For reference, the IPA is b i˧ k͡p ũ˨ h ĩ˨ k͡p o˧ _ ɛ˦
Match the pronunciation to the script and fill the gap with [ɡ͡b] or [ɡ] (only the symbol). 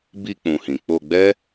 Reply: ɡ͡b